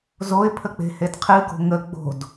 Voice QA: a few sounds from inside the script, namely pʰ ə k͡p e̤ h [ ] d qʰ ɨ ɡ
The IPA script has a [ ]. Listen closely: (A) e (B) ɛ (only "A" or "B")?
A